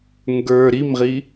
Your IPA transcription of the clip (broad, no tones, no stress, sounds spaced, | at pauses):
ŋ ɡ ə˞ ɾ i m ʁ i